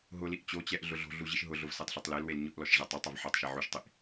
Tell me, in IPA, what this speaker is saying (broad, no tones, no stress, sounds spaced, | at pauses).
ɦ ʊ l i ʔ t͡ɕ o t͡ɕ ɛ ʔ ɮ ʊ ɮ o̤ ɮ u ʑ i ʃ ɦ ʊ ɮ ʊ v s ɛ tˤ ɬ o tˤ l e l w e l ɲ ʊ ʔ l ɔ ʃ ʑ a tˤ a tˤ a v ħ ɔ tˤ ʃ e ʕ u ʃ tˤ i ʔ